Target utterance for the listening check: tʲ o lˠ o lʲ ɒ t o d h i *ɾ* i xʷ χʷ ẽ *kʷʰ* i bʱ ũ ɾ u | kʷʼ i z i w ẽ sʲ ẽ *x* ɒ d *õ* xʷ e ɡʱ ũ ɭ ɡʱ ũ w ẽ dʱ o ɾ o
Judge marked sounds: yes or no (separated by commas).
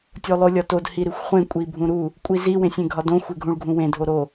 yes, no, no, yes